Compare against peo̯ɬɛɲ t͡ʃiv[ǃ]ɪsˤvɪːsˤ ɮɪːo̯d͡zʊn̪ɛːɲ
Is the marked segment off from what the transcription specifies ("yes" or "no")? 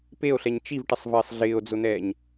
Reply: yes